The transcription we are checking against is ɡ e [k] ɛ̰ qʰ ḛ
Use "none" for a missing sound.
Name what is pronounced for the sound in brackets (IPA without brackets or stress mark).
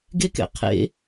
k